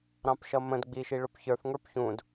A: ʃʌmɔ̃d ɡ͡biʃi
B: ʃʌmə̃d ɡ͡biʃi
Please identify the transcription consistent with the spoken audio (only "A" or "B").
B